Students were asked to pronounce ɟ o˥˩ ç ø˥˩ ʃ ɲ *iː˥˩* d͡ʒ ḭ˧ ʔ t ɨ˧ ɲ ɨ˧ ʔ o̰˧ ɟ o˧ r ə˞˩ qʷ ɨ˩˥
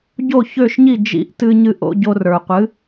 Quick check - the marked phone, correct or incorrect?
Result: incorrect